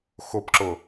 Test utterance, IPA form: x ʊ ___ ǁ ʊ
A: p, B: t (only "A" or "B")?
A